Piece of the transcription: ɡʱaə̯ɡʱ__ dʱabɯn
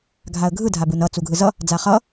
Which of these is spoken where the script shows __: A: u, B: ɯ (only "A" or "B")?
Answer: B